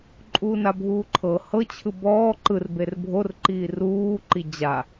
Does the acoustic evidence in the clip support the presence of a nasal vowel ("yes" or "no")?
no